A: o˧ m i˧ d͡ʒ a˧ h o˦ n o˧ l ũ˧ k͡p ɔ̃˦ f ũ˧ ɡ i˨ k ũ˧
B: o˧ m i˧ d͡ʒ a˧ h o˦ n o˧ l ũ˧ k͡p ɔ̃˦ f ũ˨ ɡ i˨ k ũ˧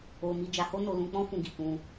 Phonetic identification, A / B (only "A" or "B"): A